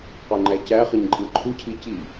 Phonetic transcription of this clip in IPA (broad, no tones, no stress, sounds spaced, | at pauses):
q o ŋ͡ǃ æ c æ χ ɯ ɲ ǃʼ ɯ ǃʰ u cʰ i c i